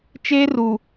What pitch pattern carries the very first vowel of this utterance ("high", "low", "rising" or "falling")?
high